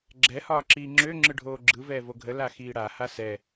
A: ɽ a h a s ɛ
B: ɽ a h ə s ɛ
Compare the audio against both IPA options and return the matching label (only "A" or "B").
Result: A